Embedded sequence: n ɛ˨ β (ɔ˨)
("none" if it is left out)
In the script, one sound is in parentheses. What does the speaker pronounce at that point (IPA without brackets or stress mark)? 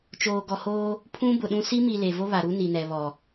ɔ˨